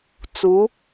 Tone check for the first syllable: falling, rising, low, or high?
rising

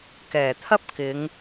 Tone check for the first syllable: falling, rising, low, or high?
low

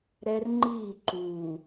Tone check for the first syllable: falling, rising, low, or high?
high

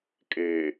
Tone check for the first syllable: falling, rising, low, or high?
low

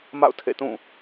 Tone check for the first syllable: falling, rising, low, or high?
falling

